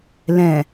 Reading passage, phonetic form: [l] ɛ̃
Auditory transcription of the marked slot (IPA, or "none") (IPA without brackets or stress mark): l